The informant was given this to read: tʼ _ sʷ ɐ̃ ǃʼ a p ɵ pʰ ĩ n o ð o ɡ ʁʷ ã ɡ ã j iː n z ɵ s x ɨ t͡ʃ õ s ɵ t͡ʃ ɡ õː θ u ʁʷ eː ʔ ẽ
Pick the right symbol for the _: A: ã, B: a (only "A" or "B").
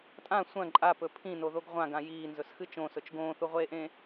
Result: A